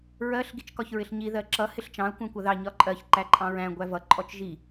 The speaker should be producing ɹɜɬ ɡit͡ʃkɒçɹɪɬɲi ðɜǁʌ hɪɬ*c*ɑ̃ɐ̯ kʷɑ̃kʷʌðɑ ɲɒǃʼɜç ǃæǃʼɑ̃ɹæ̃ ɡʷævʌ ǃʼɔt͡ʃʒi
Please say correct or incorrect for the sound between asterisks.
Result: incorrect